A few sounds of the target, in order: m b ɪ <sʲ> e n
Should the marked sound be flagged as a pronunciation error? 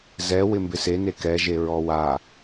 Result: yes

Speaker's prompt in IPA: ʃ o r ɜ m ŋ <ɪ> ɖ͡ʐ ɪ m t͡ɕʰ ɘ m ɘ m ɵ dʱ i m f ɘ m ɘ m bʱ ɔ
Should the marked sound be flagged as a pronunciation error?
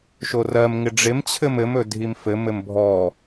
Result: no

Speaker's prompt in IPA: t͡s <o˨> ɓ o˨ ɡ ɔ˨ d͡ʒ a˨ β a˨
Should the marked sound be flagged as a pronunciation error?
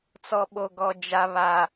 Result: yes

